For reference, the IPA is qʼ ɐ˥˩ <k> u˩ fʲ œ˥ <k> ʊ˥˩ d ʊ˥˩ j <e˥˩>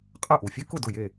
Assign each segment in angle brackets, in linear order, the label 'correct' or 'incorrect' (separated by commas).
incorrect, correct, correct